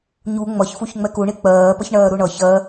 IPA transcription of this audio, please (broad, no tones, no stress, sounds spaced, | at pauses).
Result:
ɲ u ŋ͡m ʌ ç f u ç ŋ͡m ɛ k u ɳ i k͡p ɜː p ʌ ç ɳ ɜː ɾ u ɳ ʌ ç ɜ